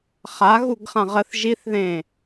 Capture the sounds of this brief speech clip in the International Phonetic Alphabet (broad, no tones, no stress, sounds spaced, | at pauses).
χ a ɣ u ɡ χ ã ʁ ə θ ʒ i θ ð ẽ